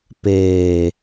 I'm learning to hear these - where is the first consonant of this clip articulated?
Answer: lips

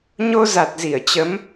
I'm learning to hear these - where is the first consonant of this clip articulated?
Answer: palate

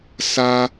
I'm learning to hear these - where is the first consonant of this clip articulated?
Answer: tongue tip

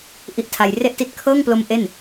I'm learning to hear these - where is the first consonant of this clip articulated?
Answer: throat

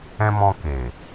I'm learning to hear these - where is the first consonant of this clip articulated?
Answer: lips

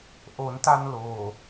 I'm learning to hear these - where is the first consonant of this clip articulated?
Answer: throat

